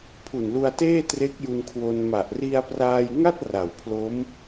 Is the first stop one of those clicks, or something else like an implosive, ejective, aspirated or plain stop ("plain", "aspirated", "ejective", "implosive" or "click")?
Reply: aspirated